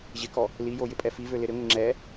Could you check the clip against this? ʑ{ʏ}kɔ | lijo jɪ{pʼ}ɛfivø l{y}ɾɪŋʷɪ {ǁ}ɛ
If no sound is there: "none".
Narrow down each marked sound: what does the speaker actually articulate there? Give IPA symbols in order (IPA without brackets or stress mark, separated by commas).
ɪ, pʼ, ɪ, ŋ͡ǁ